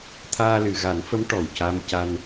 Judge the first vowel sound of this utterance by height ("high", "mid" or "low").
low